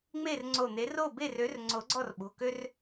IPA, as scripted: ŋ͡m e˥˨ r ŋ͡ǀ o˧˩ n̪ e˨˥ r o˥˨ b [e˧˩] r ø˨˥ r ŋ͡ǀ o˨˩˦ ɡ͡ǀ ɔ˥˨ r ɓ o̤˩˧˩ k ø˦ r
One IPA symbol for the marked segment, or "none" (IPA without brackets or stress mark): e˥˨